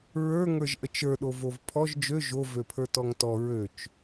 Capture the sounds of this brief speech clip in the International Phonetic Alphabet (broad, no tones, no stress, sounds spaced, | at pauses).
ɹ ə˞ ŋ ə˞ ʒ ʔ ə t͡ʃ ə˞ ɗ o v o v pʰ ɔ ʒ d͡ʒ ø ʒ o v ø pʰ ə˞ t ɔ ŋ t ɔ ɹ ø t͡ʃ